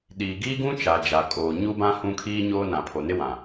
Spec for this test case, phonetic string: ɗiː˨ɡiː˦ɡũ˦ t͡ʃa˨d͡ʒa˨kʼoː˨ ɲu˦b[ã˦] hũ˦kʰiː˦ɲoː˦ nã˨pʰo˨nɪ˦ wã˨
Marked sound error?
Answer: no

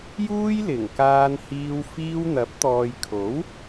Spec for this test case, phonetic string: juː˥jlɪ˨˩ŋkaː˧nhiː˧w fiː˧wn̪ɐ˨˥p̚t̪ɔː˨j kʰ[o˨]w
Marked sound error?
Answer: yes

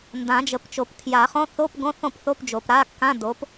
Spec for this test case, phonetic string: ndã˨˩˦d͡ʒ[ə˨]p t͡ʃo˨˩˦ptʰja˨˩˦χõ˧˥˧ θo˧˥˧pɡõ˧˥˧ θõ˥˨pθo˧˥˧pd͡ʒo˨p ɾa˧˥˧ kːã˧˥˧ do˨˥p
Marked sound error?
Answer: no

